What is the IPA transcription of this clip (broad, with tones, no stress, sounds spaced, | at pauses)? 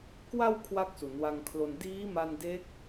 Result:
k w a˧ w kʰ w a˥˩ k̚ s u˩˦ n w a˧ ŋ kʰ l o˧ n d iː˦˥ m a˧ n d eː˦˥ k̚